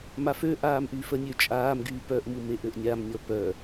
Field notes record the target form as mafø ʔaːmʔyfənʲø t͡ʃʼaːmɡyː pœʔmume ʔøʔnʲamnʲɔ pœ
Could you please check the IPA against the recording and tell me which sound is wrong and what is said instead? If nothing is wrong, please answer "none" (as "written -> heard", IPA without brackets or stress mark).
none